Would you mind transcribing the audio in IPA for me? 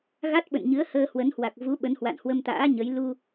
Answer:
ɣa˦˥t̚ɓə̰˧˨nɲɨ˨˦ə̯ həː˧hwə˨˦nhwa˨˩k̚ vu˨˦ ɓə˨˦nhwa̰˧˨nhwə˧mt̪a̰ː˧˥ ɲə˨˦j lu˧

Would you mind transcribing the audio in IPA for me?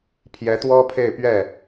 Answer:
pʰjɛ˧˥t̪wɔ˥ pʰe˥˧ɪ̯pɥɛ˥˩

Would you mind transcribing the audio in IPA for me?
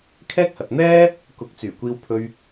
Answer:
kʰɛː˥k̚hɐ˨t̚ n̪ɛː˥ | kʊ˨˥k̚t͡syː˨˩ kʷiː˧wpʰɵ˧ɥ

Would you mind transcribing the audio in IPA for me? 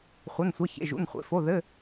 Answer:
χʷɐ˧˥˧nsʷɐ˧˥˧ çḛ˧˥˧ʒṵ˧˥˧nχʷḛ˧˥˧ fo˧˥˧ðɘ˧˥˧

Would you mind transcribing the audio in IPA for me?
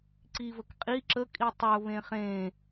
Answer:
ǀivək qʼi ǁəkʼi tˤəʊ̯βẽ χẽ

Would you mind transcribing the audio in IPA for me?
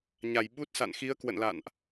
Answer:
ɲa˨˩j ɓu˦˥t̚ sa̰˧˨nxi˨˦ə̯ kwə̰˧˨nla̰˧˨nʔ

